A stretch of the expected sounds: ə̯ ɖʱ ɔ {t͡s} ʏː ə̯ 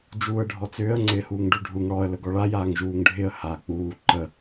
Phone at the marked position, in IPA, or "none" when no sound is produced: t͡s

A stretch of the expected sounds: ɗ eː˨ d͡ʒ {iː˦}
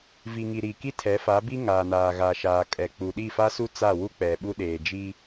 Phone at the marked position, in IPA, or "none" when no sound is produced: iː˦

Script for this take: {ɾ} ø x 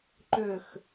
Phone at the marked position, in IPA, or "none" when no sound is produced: ǃ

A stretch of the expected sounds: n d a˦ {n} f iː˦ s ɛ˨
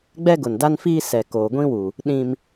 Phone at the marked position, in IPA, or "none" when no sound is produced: n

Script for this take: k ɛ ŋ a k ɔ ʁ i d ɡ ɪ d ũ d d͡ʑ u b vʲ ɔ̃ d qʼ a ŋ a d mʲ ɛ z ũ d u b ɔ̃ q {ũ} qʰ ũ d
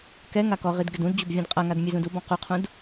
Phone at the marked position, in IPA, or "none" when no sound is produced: u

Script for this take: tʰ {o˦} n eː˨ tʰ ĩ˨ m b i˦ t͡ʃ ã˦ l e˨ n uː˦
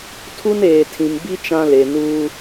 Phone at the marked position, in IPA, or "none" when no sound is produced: u˦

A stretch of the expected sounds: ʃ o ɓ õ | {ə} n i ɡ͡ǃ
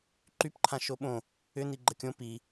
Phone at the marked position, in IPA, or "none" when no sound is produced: ʏ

